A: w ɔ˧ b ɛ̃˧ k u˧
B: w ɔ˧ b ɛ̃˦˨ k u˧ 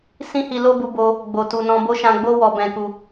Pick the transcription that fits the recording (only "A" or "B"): A